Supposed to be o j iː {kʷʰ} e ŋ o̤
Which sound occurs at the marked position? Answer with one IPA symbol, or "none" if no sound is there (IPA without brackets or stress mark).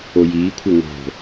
kʷʰ